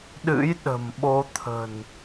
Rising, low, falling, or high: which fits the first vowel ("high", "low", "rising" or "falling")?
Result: rising